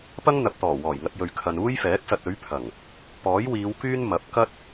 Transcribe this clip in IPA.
p ɐ˥ ŋ n̪ ɐ˨ p̚ t̪ ɔː˨˩ w ɔː˨˩ j ŋ ɐ˧ t̚ j ɵ˨ ɥ kʰ ɐ˨ n uː˥ j f ɛː˨˥ k̚ s ɐ˧ t̚ ɵ˨˥ ɥ pʰ ɐ˨˩ ŋ | p ɔː˨˥ j w iː˨˧ w k yː˥ n m ɐ˨˥ p̚ k ɐ˥ t̚

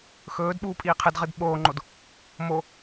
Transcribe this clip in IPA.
x ɵː d ɓ uː pʼ iː qʰ ɨ d ʁ ɨ d ɓ oː ŋ͡ǃ o d | m o

